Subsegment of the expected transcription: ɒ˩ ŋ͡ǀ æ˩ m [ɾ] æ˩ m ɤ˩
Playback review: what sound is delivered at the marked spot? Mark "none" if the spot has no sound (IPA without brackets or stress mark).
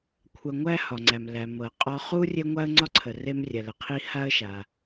l